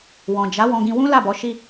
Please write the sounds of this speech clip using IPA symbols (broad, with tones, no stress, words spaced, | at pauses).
wɔ̃˨ d͡ʒa˨˦ wɔ̃˧ɡĩ˧wũ˦ la˦˨bɔ˨˦ ʃi˧